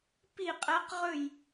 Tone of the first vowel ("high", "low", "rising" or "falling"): falling